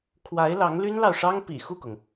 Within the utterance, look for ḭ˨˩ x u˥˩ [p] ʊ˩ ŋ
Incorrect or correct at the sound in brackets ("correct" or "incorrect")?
incorrect